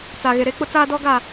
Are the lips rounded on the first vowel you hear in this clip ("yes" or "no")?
no